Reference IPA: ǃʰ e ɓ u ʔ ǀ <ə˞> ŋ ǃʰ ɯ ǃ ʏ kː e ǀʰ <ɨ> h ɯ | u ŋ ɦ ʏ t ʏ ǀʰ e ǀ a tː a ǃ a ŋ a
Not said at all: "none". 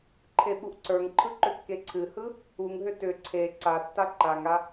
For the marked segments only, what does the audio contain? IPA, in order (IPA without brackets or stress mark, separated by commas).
ə˞, ɨ